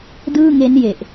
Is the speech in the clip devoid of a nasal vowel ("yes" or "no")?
yes